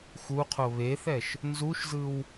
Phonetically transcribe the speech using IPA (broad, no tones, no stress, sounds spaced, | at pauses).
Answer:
x u qʰ o β e θ ɛ ʃ | n z u ʃ z ɯ w